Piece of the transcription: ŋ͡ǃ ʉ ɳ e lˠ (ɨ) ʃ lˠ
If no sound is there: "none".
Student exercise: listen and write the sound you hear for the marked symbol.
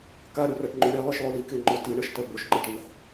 ɨ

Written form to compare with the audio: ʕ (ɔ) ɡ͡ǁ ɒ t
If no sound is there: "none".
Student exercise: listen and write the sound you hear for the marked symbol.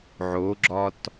o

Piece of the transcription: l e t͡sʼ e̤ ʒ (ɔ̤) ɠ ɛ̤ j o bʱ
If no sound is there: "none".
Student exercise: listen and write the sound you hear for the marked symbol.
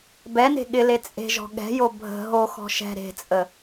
ɔ̤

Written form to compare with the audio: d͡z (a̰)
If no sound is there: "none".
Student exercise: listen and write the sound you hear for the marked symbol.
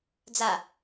a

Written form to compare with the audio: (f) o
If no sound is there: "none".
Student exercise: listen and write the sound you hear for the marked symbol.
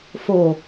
f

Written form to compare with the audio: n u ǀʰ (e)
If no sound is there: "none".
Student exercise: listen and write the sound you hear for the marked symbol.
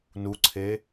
e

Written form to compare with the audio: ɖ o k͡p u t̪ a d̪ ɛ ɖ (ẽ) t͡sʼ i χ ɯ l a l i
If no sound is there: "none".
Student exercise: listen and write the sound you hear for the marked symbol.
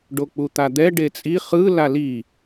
e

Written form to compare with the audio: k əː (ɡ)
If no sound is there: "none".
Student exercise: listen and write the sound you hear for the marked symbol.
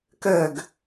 ɡ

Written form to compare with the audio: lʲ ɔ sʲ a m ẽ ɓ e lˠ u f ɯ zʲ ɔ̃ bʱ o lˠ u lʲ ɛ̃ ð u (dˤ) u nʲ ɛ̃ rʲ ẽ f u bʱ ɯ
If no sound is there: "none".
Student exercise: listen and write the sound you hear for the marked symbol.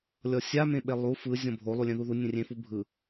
ð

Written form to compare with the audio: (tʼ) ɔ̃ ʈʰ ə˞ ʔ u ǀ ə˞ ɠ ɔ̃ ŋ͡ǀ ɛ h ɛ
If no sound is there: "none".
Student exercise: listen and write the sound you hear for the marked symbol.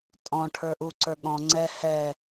tʼ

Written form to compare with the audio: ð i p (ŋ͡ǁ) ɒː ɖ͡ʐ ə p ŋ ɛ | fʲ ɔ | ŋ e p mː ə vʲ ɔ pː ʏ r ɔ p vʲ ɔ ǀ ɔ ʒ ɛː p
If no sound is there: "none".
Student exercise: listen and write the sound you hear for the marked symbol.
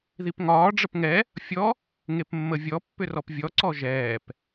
ŋ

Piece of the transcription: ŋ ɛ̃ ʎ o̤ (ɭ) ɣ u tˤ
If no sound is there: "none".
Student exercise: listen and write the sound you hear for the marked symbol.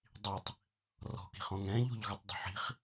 ʎ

